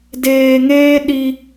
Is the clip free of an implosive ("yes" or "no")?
no